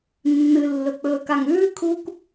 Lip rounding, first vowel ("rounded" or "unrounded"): unrounded